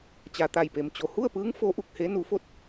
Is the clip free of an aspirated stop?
yes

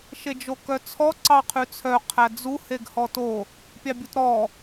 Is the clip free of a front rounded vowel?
no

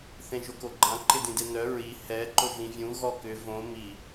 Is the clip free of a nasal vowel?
no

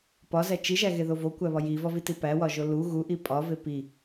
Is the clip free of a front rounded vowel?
yes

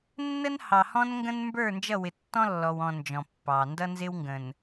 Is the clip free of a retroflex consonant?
yes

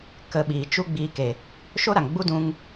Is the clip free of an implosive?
no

